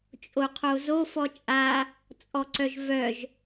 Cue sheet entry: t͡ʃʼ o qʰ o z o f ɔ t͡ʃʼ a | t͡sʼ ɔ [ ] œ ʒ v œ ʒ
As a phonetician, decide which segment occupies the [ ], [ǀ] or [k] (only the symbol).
ǀ